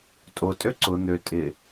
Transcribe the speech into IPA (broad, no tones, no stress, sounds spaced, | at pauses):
tʼ o tʼ ø ǀ ʊ n̪ ø tʼ ɪ